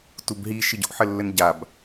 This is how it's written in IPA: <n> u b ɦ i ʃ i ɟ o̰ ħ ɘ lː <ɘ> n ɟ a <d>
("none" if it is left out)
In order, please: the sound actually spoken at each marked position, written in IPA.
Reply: t, ɘ, b

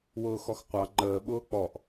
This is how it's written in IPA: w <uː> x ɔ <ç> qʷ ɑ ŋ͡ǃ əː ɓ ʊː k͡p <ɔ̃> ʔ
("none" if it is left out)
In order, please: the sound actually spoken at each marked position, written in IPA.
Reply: ʊː, x, ɔ

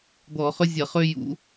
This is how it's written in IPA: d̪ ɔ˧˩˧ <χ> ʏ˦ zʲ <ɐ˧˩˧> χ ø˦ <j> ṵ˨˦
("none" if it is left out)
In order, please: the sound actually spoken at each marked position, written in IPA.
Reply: χ, ɐ˧˩˧, j

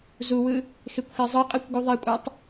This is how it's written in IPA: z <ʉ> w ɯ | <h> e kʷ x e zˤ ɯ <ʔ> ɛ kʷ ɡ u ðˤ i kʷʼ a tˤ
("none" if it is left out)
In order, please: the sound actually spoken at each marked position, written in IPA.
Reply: u, x, qʼ

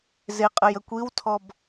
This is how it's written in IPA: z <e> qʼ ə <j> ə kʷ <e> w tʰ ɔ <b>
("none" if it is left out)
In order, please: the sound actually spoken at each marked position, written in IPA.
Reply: e, j, i, b

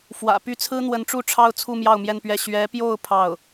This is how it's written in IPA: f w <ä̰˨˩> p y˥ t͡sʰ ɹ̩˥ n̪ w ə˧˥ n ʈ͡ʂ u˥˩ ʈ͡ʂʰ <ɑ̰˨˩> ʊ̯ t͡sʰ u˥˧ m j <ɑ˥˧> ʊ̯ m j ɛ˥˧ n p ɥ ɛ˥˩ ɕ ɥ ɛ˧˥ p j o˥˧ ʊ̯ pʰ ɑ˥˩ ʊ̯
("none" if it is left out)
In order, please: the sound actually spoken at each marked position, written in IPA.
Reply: ä̰˨˩, ɑ˥, ɑ˥˧

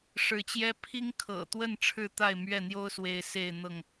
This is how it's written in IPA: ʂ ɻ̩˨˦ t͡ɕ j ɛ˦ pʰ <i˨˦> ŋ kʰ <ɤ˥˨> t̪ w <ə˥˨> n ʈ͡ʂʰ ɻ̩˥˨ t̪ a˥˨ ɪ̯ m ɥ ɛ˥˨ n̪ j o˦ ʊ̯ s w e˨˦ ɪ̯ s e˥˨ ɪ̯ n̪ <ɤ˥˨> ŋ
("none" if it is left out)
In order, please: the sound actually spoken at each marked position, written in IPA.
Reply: i˦, ɤ̰˨˩, ə˥˨, ɤ˥˨

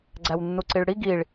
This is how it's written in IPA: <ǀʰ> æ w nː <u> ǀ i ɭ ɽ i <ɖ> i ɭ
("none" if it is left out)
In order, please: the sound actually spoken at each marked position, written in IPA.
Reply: ɡ͡ǀ, u, ɡ

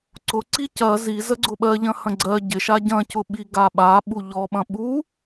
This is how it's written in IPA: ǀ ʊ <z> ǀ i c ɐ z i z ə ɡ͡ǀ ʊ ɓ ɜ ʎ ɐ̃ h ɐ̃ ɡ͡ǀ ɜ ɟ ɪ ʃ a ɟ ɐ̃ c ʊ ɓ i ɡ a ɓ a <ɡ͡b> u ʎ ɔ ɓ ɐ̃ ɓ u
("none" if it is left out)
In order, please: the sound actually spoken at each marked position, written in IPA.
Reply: none, ɓ

